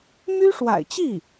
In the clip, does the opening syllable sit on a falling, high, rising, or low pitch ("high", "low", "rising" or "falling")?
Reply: high